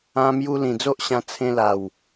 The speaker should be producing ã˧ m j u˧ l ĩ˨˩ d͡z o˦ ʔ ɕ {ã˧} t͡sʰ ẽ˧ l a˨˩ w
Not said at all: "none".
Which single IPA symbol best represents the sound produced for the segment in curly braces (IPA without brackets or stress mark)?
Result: ã˧